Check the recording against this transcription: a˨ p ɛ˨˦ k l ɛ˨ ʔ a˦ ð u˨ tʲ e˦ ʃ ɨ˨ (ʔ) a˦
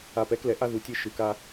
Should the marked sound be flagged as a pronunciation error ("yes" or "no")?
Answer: yes